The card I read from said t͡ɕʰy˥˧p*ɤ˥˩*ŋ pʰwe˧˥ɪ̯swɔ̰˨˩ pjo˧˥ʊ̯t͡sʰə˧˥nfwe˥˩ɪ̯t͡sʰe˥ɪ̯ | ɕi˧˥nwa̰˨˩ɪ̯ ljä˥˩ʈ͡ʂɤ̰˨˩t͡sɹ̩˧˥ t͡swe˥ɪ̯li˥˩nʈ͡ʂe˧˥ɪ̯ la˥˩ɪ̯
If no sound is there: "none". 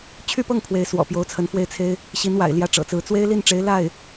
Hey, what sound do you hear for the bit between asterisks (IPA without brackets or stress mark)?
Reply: ɤ˥˩